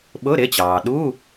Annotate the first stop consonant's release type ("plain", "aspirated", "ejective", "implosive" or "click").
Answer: implosive